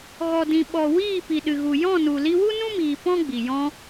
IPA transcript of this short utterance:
ɣɔ˨dĩ˨ ɓɔ˨ wiː˦˨ pi˨ɗɨ˨ɣu˨ jɔ̃˦˨nu˨ li˧wu˦nũ˦miː˨ pɔ̃˦ɡ͡bi˨jɔ̃˧

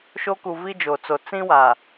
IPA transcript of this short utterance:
ʃo˦ku˨vi˦ d͡ʒo˨t͡so˨ t͡sĩ˦wa˨

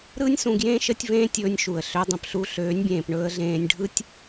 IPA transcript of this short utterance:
ɾɯː˦nʲsũ˧ɡjẽː˦ ʃəː˦tʲvẽː˦ tʲɵː˧nʲʃu˨ə̯ ɬø˧dˤə̃˨pɬu˧ ɬøː˨˦nʲbʲẽː˨pɳɵː˧ə̯ɮẽː˧nʲ ɖʱɯ˦tʲ

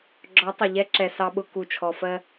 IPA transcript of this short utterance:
ɡ͡ǁɔ˨˦tˤɪ˨ ʎɛ˦ǁɛ˨ sɑ˦ɓʊ˦ ku˨t͡ʃʰɔ˨fɜ˦

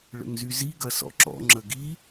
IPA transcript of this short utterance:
ɭə̰ŋzyzi ɡɐsɔ̰ǁɔ̰ ŋ͡ǁəɡi

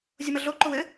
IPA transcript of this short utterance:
zʲomɐɮoǃow ɘ

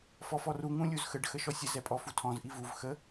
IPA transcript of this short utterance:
fɔfɔru ŋũlʲuzxəɖ xəʃɔsʲə zɛpʼɔfutʰɔ̃z ʔivuv xə

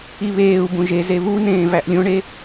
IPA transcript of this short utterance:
iβeːu̯bũ ʒeze βunẽː væʔlʲõɳe

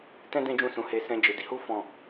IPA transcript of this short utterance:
tɛ̃˦ dɛ̃˦d͡ʒũ˦˨sũ˨˦he˧ sɛ̃˦d͡ʒe˧ di˧hu˦ fɔ̃˦˨

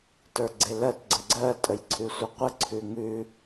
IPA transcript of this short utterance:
tə˞ɡ͡ǀelɜt ɡ͡ǀəɡ͡ǀɜ tʼəjǀʰʉsʷəqʷə ǀʰʉŋʉ

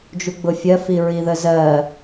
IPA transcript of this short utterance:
d͡ʒuɡ͡bʊfʲɜ fiɹiðəzɜ

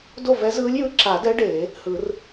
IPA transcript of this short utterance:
do˥˨vɛ˧˥zɯː˧˥lʲjɯ˧˥ ǁa˨˩˦dɛ˧˥ ɖeː˨˩˦ | hɯ˨˩˦r

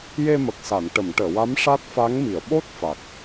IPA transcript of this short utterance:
je˧mə˨˩k̚sa˨˩˨n ʈə˨˩˨mʈəː˨˩˨wa˧˥m ʂa˦˥t̚fa˧˥ŋmi˨˩˨ə̯ ɓo˦˥t̚ fa˨˩k̚

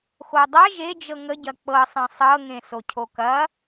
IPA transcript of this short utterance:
xodˤɐ ʒed͡ʒɤ ŋəɟɐ k͡pɤsˤẽ sˤɤŋẽ socʰokɐ

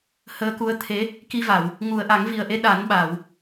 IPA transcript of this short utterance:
həː˧˥ku˧˥ə̯ t̪ʰe˧˥ | ki˧va˨˩˨w | ŋu˨˩˨ə̯ʔa˨˩˦ŋvi˨˩ə̯ʔe˧ ɗa˨˩˦nɓa˨˩˨w

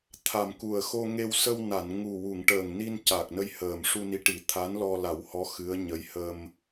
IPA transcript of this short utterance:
t̪ʰa˨˩mku˨˩ə̯xo˧ŋe˧w sə˧wna˨˩˨nŋu˨˩wu˨˩˨ŋ ʈəː˨˩ŋni˧n ca˨˩k̚nə˧jhəː˨˩m ʂu˧ni˧˥ʈi˨˩˦ t̪ʰa˧˥nlɔ˧la˨˩˦whɔ˧˥ xɨ˧˥ə̯ɲə˧˥j hə˧m

